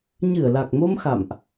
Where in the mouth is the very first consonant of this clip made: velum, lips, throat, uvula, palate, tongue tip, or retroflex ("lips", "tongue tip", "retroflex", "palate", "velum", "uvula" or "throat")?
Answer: palate